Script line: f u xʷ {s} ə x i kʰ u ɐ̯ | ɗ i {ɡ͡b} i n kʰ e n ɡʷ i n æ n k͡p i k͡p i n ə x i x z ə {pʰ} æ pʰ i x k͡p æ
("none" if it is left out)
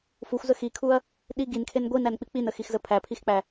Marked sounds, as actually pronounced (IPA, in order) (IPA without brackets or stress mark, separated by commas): z, ɡ, pʰ